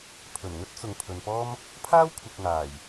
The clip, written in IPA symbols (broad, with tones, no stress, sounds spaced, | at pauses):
pʰ ɵ˨˩ n ŋ ɵ˥ t̚ t͡s ʊ˨ ŋ pʰ ɵ˨ n p ɔː˥ m | pʰ aː˥ w kʷʰ ɪ˨ k̚ ŋ aː˨˩ j